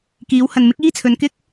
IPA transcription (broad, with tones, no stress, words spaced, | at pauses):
kiː˨˧w hɐ˨nmɪ˥k̚ iː˥t͡sʰɵ˨˧nkɪ˥k̚